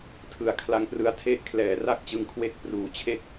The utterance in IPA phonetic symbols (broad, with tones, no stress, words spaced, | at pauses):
tʰɯ˨˩a̯kʰla˧ŋprɯ˦˥a̯tʰe˥˩ʔ kʰlɛː˩˦ra˥˩k̚t͡ɕɯ˧ŋkʰwe˦˥k̚ pruː˩˦t͡ɕʰe˦˥k̚